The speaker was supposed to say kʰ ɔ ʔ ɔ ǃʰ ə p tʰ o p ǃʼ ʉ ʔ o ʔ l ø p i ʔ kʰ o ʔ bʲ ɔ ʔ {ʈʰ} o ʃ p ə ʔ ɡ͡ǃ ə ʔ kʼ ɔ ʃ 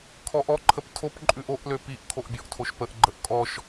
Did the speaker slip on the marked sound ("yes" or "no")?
yes